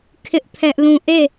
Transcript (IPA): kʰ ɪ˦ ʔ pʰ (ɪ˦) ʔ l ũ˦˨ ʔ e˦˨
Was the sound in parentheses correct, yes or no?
no